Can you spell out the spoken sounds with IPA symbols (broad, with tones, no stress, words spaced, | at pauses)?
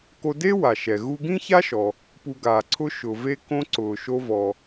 ko˧de˥wa˩ʃɛ˩ ɣu˧ɡĩ˥ça˥ʃɔ˩ | pu˧ɡaː˩ǀʰʊ˥ ʃʊ˩ve˥kõ˥ ǀʊː˩ʃo˧vɔ˩